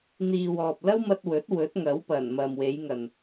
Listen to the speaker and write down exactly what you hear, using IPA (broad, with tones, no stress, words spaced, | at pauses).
n̪iː˨wɔː˨p̚lɐ˥wmɐ˧t̚ wɵ˨˥t̚ wɵ˨˥t̚ŋɐ˨˥wpɐ˨˩n mɐ˨mwe˨˧jŋɐ˨n